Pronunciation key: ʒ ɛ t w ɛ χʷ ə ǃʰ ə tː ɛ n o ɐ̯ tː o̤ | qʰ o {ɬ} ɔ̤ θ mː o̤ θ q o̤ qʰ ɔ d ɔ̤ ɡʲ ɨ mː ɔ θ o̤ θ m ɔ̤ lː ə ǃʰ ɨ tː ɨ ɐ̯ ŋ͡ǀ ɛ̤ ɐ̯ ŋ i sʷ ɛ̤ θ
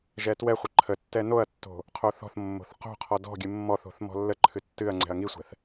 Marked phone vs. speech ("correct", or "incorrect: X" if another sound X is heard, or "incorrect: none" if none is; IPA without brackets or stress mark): incorrect: θ